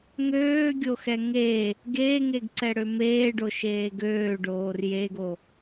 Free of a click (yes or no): no